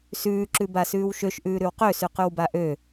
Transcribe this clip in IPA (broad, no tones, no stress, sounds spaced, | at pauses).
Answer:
s ʉː ǁ ʉ b a s ʉː w ʃ ø ʃ ʔ ʉː ɾ ʉ w q ø s ʉ q ʉ w b a ʔ ø